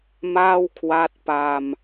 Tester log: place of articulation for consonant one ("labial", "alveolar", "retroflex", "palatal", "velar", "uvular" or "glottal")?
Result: labial